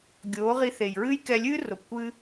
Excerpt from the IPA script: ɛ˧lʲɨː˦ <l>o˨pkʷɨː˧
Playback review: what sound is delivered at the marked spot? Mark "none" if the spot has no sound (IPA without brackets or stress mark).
r